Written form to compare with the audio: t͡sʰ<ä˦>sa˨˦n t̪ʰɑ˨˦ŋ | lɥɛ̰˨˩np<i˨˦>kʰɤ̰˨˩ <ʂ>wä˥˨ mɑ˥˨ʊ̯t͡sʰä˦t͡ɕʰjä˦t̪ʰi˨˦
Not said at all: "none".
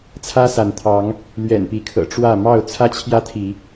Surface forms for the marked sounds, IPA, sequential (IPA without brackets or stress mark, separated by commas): ä˦, i˨˦, ʈ͡ʂ